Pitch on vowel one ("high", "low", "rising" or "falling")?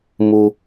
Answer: high